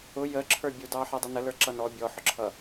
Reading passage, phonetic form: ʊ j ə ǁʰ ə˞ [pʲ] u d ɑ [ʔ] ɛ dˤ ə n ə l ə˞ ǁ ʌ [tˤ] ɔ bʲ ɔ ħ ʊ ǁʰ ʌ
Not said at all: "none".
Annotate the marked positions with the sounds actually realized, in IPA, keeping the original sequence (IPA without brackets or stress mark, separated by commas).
bʲ, ħ, n